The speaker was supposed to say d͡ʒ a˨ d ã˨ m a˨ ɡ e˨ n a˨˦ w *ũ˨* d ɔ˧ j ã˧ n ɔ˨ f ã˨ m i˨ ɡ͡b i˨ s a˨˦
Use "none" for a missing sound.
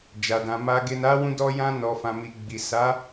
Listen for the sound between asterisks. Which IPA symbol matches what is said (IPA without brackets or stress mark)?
ũ˧